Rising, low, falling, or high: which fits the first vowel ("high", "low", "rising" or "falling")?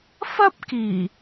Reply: high